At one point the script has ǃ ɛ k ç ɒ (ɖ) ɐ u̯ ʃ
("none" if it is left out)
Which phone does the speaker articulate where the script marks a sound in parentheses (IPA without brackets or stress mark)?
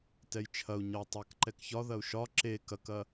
ð